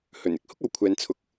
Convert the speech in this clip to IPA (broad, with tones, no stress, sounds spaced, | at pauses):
h ɵ˨˩ n ɪ˥ k̚ h ʊ˥ k̚ ɐ˨ w kʷʰ ɛː˨ n t͡sʰ ʊ˨˥ k̚